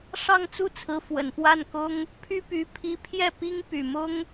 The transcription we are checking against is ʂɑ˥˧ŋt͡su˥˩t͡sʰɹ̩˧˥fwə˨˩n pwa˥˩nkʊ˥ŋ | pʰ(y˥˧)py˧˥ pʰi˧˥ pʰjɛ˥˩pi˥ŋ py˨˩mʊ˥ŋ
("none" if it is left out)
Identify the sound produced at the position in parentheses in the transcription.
y˥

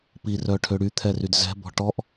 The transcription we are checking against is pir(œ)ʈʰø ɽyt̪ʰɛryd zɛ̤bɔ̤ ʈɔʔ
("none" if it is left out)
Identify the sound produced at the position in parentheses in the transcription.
œ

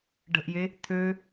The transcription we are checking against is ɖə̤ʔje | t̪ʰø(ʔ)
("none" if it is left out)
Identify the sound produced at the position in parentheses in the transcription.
none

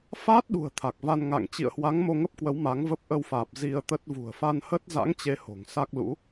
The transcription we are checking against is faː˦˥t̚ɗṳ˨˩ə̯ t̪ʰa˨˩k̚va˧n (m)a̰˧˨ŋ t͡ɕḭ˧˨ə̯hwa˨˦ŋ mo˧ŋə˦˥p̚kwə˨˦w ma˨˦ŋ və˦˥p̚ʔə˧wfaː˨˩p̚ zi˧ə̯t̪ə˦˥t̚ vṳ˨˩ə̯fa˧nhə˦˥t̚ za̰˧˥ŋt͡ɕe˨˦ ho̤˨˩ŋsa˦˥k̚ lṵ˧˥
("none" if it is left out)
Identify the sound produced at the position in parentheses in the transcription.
ŋ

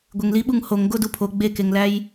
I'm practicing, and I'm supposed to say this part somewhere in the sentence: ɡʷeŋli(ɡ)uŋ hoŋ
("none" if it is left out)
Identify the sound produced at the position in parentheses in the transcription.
ɓ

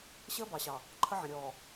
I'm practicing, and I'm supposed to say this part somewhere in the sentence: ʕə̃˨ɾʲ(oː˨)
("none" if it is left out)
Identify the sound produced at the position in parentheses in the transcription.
ɔː˨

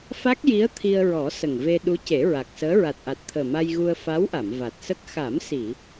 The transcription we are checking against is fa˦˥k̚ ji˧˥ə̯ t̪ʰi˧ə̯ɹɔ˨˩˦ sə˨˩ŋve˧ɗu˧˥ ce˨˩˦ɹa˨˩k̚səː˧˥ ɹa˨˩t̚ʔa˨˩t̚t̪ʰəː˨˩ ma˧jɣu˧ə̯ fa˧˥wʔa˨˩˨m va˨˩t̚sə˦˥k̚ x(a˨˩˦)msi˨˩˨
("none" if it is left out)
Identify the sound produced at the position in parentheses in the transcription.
a˨˩˦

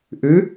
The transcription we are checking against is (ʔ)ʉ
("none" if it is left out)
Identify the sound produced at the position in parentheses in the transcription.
ʔ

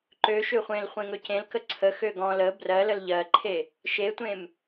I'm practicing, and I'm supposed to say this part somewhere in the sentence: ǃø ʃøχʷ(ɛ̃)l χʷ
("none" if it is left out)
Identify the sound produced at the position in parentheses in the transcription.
ẽ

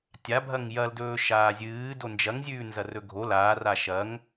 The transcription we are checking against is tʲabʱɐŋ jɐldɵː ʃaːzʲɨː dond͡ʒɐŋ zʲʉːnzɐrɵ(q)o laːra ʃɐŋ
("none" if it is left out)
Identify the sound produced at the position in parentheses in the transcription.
ɡʱ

